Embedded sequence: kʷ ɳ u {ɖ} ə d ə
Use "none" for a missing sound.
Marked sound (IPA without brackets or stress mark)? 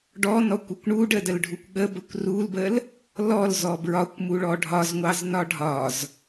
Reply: ɖ